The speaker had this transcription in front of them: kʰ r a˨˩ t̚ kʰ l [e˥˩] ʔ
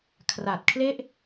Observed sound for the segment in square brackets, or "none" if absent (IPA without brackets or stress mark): e˥˩